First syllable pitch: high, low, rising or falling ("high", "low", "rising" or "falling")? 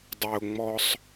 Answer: low